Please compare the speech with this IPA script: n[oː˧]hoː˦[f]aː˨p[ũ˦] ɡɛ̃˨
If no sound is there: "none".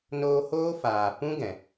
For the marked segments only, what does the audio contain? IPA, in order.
oː˧, f, ũ˦

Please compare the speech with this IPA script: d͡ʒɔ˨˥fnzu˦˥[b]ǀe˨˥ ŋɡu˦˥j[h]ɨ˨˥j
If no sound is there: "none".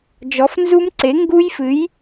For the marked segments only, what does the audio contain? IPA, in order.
m, f

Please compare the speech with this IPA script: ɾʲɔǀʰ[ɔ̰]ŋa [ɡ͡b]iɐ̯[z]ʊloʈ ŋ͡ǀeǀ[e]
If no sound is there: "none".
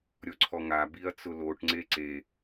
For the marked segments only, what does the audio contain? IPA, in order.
ɔ, b, t͡s, e

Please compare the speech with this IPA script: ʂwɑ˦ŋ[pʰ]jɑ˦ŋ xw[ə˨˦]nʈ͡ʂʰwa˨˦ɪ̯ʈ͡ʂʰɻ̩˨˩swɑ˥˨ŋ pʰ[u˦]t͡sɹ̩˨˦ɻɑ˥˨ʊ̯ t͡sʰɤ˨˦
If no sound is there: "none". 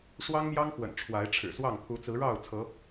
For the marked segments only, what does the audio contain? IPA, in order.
m, ə̰˨˩, u˨˦

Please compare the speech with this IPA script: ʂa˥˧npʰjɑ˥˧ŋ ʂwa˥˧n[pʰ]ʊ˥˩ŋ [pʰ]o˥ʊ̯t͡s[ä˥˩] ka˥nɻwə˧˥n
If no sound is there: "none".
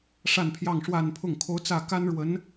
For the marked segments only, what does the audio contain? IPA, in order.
pʰ, kʰ, ä˥˩

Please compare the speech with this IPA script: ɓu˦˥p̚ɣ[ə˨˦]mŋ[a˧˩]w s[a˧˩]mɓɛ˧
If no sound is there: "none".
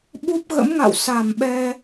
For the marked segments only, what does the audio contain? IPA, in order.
ə̰˧˥, a̰˧˨, a˧˩

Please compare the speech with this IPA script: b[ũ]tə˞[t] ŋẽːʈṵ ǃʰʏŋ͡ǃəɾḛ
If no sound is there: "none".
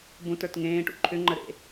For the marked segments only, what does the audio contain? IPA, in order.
ũ, t

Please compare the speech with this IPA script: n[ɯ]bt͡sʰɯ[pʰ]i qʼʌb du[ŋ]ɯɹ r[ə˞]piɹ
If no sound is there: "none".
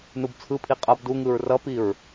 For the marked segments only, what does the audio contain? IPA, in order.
u, pʰ, ŋ, ʌ

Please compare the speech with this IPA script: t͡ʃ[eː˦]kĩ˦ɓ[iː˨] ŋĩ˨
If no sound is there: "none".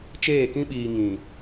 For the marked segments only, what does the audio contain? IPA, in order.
eː˦˨, iː˨

